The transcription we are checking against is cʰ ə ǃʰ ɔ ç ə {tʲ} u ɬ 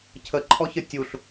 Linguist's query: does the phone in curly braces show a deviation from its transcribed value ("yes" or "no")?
no